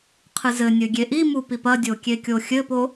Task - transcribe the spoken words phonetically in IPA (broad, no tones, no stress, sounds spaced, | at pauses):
qʰ ɨ z ɘ nʲ ɘ ɡʲ e ʔ i m u p i p ɐ dʲ o kʲ e kʲ o xʲ ɘ p o